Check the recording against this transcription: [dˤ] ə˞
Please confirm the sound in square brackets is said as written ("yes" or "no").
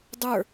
yes